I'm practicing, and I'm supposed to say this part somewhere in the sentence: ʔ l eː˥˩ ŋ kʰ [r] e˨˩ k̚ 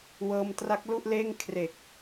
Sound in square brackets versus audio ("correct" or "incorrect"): correct